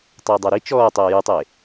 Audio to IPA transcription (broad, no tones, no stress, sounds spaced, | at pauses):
tˤ ɵː dˤ a ɾ i t͡ʃ ɔː tˤ ɵː j u tˤ e